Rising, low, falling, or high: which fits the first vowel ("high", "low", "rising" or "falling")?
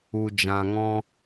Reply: low